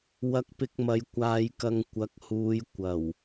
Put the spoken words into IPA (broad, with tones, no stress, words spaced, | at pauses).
wɐ˧k̚pɪ˧k̚mɐ˨˧j kʷaː˧jkɐ˧ŋ kʷɐ˨˥k̚huː˨˧j kʷɐ˨˩w